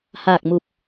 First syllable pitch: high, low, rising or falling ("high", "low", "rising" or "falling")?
low